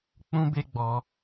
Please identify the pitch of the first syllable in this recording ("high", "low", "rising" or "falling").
high